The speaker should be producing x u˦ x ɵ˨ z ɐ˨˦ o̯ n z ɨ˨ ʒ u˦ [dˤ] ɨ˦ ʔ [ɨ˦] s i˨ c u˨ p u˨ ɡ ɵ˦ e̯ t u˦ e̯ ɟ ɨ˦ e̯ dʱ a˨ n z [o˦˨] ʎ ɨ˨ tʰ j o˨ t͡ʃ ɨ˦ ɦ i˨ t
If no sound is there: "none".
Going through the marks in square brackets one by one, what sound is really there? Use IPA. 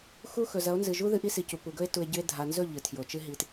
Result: ð, i˦, ɵ˦˨

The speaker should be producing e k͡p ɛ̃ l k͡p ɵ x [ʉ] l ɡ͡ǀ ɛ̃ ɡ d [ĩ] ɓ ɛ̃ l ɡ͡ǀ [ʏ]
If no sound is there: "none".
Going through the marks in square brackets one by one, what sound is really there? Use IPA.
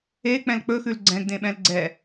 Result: ʉ, ẽ, ɛ

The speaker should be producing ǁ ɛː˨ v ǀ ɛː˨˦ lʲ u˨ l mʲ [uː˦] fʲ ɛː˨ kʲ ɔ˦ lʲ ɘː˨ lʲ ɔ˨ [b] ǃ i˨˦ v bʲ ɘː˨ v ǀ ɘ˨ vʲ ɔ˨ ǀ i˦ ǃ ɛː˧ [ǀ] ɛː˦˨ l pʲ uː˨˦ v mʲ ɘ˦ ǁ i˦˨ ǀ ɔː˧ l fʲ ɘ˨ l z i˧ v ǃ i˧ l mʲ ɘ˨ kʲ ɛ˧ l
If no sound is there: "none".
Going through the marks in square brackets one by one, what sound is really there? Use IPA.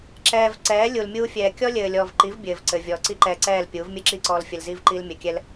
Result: uː˧, v, ǀ

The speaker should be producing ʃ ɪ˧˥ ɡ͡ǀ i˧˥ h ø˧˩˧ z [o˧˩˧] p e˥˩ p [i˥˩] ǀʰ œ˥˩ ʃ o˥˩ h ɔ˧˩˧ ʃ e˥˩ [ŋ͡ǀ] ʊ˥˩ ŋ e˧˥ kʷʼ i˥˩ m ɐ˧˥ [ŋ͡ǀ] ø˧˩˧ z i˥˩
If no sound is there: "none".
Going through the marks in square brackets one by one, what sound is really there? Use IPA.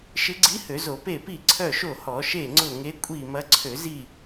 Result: o˧˩˧, i˥˩, ŋ͡ǀ, ǀʰ

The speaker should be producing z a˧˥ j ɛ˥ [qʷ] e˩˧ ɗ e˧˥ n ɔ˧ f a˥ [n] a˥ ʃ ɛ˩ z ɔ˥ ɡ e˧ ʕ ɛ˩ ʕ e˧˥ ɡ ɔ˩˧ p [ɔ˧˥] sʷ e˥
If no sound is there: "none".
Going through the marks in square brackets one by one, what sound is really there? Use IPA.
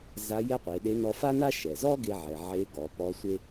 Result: qʷ, n, ɔ˧˥

